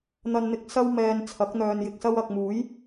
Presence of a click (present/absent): absent